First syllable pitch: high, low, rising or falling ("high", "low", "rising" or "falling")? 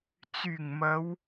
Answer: low